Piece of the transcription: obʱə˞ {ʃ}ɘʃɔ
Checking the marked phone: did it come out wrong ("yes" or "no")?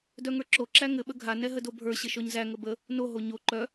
yes